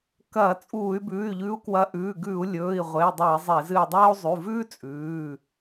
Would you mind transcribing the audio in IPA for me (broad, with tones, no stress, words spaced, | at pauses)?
kɐː˧˩˧t͡sʼuː˧˩˧y̯ bʉː˩˧˩y̯ʎʉ˨˦u̯kwɐ˨˦ ʔʉː˩˧˩ɡʉ˧˩˧u̯ lʲɵː˩˧˩i̯ ʁʷe˩˧˩i̯dˤo˧˩˧i̯ zˤe˧˩˧zɨ˧˩i̯dˤɐː˥u̯ zˤʉ˩˧˩vʉː˥t͡sʼʉː˩˧˩